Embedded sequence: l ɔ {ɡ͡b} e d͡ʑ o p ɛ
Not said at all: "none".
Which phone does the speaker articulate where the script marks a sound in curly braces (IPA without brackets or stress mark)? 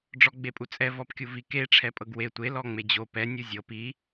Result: ŋ͡m